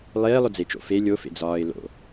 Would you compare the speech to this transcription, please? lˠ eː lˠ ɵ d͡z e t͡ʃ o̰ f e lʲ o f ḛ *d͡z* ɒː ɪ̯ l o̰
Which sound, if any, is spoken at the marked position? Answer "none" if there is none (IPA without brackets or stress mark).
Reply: d͡z